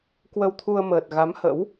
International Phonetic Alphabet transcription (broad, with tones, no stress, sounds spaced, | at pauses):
k w ə˧ w t̪ʰ u˧ ə̯ m əː˨˩ t̚ ɣ a˨˦ m h ə̰˧˥ w